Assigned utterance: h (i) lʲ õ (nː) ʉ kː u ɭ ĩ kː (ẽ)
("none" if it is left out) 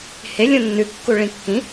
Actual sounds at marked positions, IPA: e, nː, ĩ

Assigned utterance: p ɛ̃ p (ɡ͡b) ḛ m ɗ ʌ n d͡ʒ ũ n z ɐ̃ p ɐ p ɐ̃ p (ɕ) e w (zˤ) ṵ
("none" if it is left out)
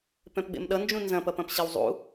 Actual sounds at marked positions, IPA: ɡ͡b, ɕ, zˤ

